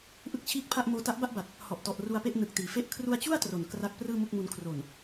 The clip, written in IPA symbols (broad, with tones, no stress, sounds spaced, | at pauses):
ʔ ɯ˥˩ k̚ t͡ɕʰ iː˥˩ k̚ pʰ a˥˩ ʔ m oː˧ t a˦˥ ʔ b a˥˩ ʔ b a˨˩ t̚ | h ɔ˨˩ ʔ t ɔ˨˩ ʔ r u˧ a̯ p e˥˩ ʔ n ɯ˨˩ k̚ t iː˩˦ f e˥˩ ʔ kʰ r u˧ a̯ t͡ɕ u˥˩ a̯ t r o˨˩ n k r a˥˩ k̚ p r ɯː˥˩ m u˥˩ k̚ m u˧ n kʰ r o˨˩ n